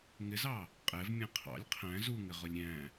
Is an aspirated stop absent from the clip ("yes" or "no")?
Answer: no